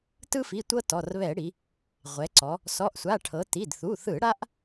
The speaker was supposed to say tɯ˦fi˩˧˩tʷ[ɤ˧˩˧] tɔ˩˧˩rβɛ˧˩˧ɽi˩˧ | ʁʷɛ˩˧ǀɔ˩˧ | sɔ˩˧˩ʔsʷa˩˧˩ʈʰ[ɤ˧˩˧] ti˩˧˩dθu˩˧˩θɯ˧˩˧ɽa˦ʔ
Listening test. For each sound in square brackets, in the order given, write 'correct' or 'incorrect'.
incorrect, incorrect

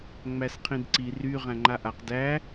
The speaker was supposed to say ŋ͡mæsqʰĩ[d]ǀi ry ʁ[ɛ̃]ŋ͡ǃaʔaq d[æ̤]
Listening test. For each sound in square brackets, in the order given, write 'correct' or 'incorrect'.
correct, incorrect, incorrect

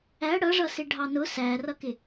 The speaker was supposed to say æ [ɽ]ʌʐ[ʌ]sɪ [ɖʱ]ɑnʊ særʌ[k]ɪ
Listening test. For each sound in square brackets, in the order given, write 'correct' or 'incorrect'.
correct, correct, correct, correct

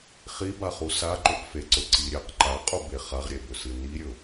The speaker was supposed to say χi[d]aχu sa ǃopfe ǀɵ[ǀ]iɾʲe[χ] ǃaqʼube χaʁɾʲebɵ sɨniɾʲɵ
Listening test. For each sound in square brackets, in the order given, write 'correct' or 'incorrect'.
incorrect, correct, incorrect

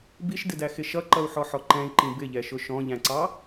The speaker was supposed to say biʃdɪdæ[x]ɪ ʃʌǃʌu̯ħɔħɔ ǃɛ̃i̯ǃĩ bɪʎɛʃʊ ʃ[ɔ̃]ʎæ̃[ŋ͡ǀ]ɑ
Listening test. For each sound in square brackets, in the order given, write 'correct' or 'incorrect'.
correct, correct, incorrect

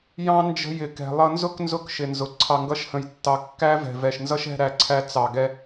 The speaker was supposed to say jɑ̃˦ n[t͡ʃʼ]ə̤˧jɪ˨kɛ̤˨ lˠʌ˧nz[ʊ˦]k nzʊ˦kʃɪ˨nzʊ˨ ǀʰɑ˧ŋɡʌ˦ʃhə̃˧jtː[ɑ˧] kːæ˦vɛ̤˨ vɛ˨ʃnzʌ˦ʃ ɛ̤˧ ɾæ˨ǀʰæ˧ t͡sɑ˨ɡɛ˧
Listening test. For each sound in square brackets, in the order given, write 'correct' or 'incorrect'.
incorrect, correct, correct

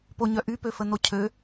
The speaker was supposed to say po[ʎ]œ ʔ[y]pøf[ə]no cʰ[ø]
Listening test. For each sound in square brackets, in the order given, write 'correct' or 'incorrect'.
incorrect, correct, correct, correct

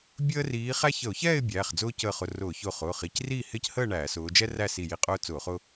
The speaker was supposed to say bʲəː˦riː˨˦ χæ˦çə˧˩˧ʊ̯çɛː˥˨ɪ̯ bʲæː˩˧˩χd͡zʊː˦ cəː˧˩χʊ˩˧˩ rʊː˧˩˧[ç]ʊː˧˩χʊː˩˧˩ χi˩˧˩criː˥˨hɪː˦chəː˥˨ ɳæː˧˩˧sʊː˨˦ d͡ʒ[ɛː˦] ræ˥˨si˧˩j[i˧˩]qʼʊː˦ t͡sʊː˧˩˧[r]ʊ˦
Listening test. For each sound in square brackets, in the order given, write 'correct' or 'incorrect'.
correct, incorrect, correct, incorrect

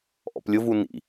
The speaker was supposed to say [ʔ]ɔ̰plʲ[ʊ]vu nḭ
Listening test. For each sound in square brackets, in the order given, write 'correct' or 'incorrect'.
correct, correct

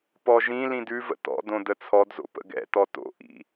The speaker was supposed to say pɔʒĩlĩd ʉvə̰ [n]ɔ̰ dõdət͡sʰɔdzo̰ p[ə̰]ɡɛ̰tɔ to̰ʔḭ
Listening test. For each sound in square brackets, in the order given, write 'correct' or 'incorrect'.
incorrect, correct

